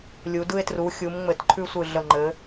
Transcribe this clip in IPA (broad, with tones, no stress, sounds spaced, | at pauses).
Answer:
lʲ u˩˧ d ɯ˧ e̯ t r u˩˧ xʲ u˩˧ m ŋ͡m ɘ˩˧ t ǃʰ ʉ˧ sʷ ɯ˨˩ ɮ ə˨˩ ŋ͡ǃ ɘ˩˧